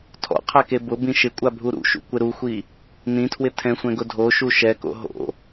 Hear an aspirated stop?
yes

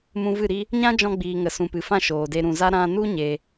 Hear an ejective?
no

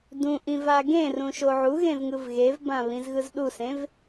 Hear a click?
no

